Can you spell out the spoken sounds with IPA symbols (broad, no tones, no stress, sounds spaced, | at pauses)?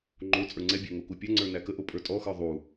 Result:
ŋ͡ǃ o t͡sʼ ə˞ ŋ͡ǀ ɛ bʲ æ ŋ o k u pʲ ɐ ŋ͡ǀ ə˞ n æ k ə ʔ o pʼ ə˞ tʼ ɔ x ə˞ ðˤ u